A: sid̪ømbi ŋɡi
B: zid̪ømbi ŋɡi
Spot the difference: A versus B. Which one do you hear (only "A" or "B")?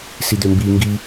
A